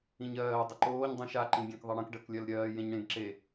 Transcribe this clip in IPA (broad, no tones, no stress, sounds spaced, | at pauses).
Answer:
ĩ ɲ ɜː dˤ ə ǃ oː ɲ dˤ ə̃ ʃ a ǃ ĩ ɡʲ ẽ k ðˤ ɜ ɽ ə̃ k ɖ ɜ k lʲ ɜ l ɾʲ ɜː j ẽ ɲ ɽ ẽ ɡ ǁ e